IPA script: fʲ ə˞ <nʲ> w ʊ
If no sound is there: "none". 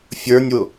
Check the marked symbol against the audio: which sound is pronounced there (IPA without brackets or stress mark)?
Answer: nʲ